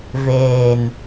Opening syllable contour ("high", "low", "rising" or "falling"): low